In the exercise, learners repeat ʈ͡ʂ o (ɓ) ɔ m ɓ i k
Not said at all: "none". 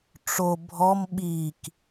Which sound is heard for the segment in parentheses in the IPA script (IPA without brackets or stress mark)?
bʱ